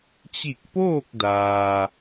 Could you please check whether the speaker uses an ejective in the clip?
no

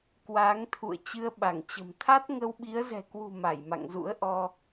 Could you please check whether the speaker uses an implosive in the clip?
yes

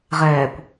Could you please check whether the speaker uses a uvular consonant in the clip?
yes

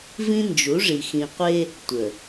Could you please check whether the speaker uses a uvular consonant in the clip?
yes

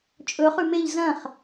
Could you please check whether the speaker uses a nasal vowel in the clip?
yes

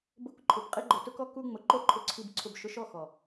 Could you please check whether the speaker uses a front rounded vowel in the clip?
no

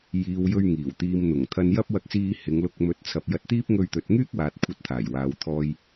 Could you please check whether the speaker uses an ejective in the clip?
no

